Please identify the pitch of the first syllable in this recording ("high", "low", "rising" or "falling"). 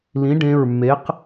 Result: rising